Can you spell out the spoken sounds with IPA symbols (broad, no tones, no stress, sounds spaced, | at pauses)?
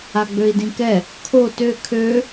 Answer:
a ɡ͡b ø i̯ d ĩ k ɛ | kʰ o t ø kʰ ø